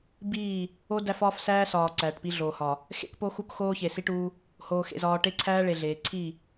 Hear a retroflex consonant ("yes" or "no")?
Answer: yes